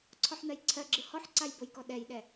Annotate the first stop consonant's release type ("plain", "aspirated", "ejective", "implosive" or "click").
click